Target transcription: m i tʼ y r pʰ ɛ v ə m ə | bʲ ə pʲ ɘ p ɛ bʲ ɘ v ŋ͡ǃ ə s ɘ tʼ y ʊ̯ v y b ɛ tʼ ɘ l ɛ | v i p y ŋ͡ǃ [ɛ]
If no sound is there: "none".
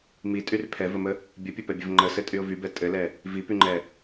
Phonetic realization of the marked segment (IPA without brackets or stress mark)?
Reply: ɛ